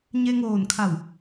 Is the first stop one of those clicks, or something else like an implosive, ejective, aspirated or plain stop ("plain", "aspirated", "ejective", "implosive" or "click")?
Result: aspirated